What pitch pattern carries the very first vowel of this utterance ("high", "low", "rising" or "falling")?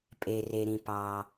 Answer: low